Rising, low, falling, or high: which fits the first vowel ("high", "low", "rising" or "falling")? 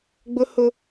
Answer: high